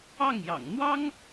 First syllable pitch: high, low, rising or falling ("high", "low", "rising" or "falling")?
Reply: falling